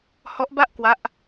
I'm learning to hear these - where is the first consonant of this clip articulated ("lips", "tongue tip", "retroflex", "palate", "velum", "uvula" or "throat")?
throat